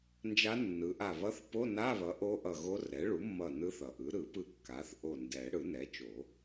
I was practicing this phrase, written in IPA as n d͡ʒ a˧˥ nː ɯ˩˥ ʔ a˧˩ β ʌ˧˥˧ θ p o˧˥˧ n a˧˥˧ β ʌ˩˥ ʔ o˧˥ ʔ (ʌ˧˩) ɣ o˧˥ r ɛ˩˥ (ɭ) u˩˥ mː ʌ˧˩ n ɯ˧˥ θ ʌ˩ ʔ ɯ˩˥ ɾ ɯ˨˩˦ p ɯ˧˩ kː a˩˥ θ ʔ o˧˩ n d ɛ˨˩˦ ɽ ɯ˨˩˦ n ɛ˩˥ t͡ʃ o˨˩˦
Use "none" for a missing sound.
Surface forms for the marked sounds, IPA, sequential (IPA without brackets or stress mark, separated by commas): ʌ˧˩, ɭ